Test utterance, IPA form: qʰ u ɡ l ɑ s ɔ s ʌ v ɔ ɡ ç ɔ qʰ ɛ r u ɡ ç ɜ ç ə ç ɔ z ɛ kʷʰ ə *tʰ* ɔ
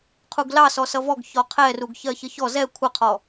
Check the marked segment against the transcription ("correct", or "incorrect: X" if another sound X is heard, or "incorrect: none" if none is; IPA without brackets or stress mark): incorrect: qʰ